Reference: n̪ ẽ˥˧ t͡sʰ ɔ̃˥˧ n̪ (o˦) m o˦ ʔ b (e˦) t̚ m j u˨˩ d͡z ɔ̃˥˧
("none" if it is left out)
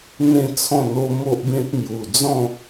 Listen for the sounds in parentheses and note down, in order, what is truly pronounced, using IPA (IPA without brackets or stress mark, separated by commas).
o˦, ẽ˦